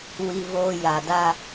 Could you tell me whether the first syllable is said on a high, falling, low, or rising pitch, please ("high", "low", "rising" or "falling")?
high